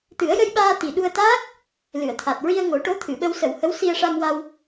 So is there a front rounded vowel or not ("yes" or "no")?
no